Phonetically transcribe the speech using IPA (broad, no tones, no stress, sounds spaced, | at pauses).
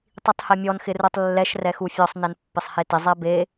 tˤ i tˤ h ɛ mʲ ɔ n x ɪ r u tˤ lː ɛ ʃ r ɛ x u fʲ ɔ sˤ n ɛ n pː ɪ sˤ h e t ɪ zˤ ɛ b e